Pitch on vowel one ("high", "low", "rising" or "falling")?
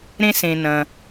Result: high